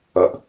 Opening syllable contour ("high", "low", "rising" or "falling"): low